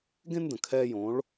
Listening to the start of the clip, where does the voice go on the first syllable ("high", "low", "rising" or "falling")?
high